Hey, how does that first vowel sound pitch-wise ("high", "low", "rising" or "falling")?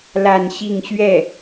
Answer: falling